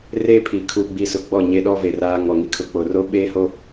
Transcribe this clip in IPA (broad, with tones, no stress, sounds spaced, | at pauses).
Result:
r e˦ pʰ i˨ kʰ u˨ ɡ͡b i˦ s ʊ˦ ɡ͡b ɔ˦˨ ɲ e˦ ɗ ɔ˦ v e˨ r aː˦ ŋ ɔ˨ ŋ i˦ kʰ ʊ˨˦ k͡p o˨ r o˦ ɓ eː˦ h o˦